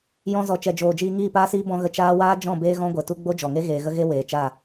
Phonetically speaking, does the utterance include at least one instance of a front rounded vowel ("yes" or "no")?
no